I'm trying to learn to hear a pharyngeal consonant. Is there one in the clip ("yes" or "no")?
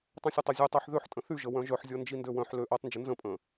yes